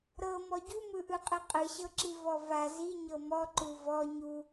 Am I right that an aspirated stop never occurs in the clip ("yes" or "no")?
yes